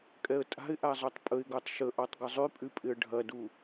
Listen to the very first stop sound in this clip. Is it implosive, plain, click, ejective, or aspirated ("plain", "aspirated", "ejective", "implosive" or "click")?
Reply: ejective